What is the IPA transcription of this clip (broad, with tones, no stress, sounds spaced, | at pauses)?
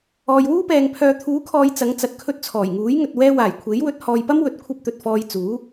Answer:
ɔː˨ j w uː˥ p ɛː˨ ŋ pʰ œː˨ t̪ʰ uː˨˥ kʰ ɔː˨ j t͡s ɐ˨˥ ŋ t͡s ɐ˨ t̚ kʰ ɵ˧ t̚ t͡sʰ ɔː˨˩ j ŋ uː˨˥ j ŋ ɵ˨ t̚ w ɛː˧ w aː˨˩ j kʷʰ e˨˥ j w ɵ˨˥ t̚ h ɔː˨ j p ɐ˥ m w ɵ˨ t̚ kʷʰ ɐ˥ p̚ t̪ ɵ˨ t̚ f ɔː˧ j t͡s uː˨˥